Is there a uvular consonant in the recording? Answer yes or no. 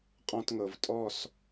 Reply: yes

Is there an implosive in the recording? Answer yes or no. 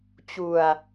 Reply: no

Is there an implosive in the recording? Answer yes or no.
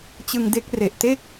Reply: no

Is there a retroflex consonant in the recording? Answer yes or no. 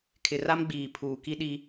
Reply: no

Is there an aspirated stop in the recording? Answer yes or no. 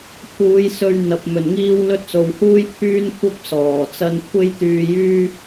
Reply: yes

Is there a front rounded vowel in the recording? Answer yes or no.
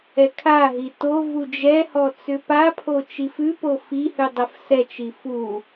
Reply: yes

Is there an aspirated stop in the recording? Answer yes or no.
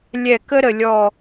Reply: no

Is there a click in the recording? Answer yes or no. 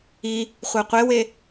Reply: no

